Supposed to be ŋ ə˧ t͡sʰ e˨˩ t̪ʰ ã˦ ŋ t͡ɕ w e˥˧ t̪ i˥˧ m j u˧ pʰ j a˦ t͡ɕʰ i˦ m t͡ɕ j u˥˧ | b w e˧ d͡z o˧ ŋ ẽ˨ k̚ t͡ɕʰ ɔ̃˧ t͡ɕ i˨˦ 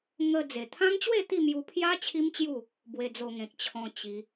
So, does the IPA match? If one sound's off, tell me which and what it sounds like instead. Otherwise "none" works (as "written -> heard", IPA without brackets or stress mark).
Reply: t͡sʰ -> d͡z